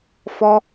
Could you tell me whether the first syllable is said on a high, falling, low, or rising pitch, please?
high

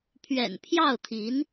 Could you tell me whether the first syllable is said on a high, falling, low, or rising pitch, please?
low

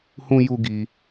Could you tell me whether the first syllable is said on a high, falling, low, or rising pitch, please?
high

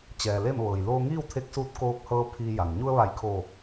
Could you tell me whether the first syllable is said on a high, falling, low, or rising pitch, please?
low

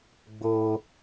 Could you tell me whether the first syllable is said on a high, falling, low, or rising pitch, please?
high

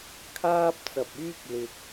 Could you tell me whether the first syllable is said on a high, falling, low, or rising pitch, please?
high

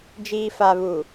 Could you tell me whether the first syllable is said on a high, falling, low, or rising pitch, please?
low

